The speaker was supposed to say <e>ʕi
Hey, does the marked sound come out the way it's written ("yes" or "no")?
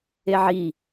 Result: yes